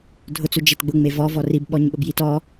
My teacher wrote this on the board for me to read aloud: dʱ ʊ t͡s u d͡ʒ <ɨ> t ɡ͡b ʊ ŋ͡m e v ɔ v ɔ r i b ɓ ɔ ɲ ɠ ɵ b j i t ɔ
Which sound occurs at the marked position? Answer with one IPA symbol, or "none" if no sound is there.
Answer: e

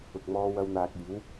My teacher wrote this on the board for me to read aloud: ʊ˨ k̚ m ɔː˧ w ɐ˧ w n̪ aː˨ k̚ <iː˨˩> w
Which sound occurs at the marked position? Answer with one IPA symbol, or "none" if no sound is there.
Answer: iː˨˥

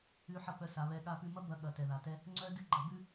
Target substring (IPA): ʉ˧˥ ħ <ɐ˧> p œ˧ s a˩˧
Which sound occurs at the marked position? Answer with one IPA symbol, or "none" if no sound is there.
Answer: ɐ˧˥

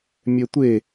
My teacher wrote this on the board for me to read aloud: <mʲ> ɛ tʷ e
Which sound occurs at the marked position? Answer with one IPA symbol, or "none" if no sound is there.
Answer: mʲ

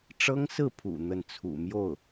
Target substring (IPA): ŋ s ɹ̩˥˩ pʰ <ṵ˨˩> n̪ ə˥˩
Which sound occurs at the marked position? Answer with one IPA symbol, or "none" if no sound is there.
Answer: ṵ˨˩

